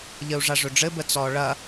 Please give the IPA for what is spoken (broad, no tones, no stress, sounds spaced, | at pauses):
ʎ ə u̯ ʐ a ʐ ɵ ɖ͡ʐ ɘ b ə t͡s ɔ ɭ ɐ